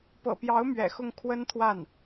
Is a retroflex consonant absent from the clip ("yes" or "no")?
yes